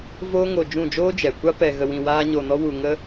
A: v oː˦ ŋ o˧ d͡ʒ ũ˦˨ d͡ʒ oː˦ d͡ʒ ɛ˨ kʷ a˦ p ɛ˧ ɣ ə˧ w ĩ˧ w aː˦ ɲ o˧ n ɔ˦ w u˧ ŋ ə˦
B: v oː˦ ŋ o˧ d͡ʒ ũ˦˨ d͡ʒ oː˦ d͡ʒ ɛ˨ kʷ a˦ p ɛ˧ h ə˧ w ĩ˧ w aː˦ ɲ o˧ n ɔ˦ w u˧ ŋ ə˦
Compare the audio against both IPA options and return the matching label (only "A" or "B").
A